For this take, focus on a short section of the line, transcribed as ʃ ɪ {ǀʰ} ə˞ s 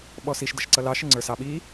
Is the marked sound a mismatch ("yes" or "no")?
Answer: yes